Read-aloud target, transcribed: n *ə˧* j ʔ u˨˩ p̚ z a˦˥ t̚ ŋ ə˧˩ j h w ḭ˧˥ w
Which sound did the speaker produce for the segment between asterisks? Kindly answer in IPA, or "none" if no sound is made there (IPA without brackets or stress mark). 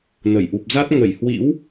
ə˧˩